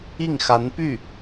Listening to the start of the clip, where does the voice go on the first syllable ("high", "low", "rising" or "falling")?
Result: falling